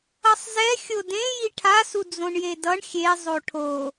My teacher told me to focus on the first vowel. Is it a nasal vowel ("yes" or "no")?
no